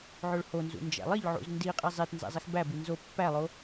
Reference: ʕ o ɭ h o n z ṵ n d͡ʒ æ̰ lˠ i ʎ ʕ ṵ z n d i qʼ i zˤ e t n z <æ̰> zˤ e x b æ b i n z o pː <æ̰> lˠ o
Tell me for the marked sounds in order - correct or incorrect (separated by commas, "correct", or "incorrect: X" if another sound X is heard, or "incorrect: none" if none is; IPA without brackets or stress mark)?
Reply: correct, incorrect: æ